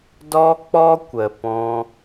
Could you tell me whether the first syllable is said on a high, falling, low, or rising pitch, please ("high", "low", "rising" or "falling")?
high